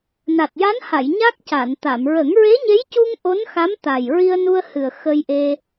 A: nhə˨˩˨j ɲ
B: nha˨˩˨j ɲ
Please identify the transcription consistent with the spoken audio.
B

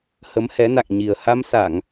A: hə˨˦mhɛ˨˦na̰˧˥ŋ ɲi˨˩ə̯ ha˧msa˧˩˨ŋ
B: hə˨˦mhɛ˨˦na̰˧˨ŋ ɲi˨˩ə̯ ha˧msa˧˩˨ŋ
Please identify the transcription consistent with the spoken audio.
B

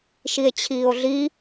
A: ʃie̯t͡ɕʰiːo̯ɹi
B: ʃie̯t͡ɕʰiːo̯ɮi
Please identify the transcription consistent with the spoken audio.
B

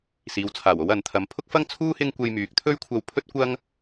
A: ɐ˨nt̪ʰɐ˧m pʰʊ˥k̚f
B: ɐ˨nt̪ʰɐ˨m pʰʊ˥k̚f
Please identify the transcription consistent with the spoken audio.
A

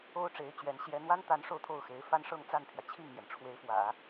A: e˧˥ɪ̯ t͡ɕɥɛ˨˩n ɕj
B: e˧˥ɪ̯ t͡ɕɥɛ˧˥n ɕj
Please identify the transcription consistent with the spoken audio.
B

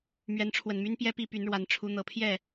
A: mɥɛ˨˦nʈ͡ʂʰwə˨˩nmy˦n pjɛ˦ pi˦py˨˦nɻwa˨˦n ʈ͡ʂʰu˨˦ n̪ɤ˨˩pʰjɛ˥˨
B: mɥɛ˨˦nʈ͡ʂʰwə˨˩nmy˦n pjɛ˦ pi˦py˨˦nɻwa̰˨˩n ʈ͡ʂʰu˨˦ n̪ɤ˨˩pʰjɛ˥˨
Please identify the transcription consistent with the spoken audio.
A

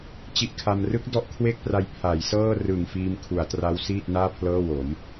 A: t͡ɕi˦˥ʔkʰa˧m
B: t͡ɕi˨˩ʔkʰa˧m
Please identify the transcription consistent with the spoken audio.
A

